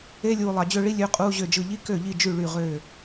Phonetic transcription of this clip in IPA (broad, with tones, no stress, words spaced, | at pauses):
e˧˥˧lʲuː˨ lˠɑ˨d͡ʑø˥˧ɭi˥ lʲø˧˥˧qʼuː˧˥˧ʑø˥˩d͡ʒɯ˥˩ ʎi˥kø˥˩ʎi˥˩d͡ʒy˥˩ ɭy˥˩ʁøː˥˩